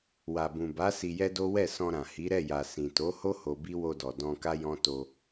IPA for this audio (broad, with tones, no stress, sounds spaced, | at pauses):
w a˨ b ũ˨ b a˨˦ s i˧ j ɛ˦ d o˦ w ɛ˦˨ s ɔ̃˧ ɾ ã˨ h i˨˦ ɾ ɛ˦˨ j a˨ s ĩ˨ t o˨˦ h o˦ h o˧ b i˦ w o˧ d ɔ˨ d ɔ̃˧ k a˦ j ɔ̃˦ t o˧